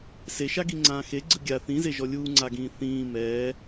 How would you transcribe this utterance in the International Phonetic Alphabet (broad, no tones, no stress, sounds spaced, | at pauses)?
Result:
s e ʃ a ɡ i ŋ͡ǀ ãː x e ɡ͡ǀ ɯ ɡʲ a θ ĩ z e ʒ ɔ lʲ uː ŋ͡ǀ a ɡ ĩː θ ĩː m ɛː